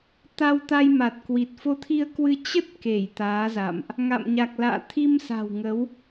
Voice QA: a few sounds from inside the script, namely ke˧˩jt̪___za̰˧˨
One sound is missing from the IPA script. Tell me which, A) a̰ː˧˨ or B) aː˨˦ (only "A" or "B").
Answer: B